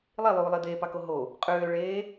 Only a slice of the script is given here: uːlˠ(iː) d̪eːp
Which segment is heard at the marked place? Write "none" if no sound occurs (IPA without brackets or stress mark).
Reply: i